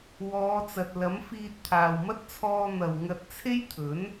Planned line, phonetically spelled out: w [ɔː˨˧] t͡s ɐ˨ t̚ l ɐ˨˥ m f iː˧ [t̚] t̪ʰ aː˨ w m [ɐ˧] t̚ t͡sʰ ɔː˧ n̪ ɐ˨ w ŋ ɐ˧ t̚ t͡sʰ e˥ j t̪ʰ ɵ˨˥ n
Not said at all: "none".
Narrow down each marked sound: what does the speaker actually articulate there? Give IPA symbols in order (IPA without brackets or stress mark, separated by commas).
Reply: ɔː˨˧, t̚, ɐ˥